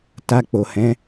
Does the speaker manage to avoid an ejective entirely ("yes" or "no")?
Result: yes